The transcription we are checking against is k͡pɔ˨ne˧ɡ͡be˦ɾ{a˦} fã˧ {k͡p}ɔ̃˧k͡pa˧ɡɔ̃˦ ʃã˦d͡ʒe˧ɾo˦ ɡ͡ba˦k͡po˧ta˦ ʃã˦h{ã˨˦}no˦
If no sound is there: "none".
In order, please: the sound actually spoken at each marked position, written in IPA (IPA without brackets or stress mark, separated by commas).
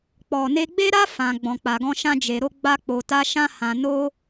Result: a˦, ɡ͡b, ã˧